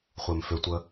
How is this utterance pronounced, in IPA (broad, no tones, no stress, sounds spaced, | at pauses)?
χʷ e m f ʏ tʷ ə